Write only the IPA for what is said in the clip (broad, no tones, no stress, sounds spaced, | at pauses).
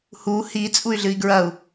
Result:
h u h i t͡sʼ u y̯ ɮ ɨ i̯ ɡ ɹ ɐ u̯